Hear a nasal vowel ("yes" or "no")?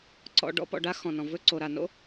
yes